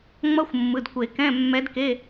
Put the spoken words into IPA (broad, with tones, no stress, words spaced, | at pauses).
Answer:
ŋ͡mʌ˧˥˧xʷmːɯ˩˧˩dkʷe˨˩˦ kɛ̃˧˥˧ mːɛ˧˥dke˧˥˧